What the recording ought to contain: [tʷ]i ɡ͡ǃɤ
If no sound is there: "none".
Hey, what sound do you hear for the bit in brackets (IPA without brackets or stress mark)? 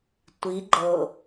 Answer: tʷ